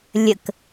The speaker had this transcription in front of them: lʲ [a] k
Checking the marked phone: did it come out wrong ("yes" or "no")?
yes